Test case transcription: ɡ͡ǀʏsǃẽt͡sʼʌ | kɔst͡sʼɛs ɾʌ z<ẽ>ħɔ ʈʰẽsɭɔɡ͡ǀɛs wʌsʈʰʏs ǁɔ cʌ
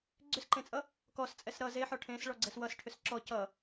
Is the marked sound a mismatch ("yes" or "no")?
yes